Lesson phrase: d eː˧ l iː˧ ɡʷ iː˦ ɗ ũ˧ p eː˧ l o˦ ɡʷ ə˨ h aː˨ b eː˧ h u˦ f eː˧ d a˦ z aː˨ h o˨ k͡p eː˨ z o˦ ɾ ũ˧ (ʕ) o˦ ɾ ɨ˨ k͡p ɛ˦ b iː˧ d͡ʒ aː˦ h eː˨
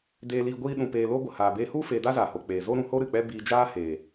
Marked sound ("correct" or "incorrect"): incorrect